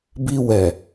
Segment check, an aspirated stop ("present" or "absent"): absent